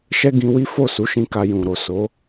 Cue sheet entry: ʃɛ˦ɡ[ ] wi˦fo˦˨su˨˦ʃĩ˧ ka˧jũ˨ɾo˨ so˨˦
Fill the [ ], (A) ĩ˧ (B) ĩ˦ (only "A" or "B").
A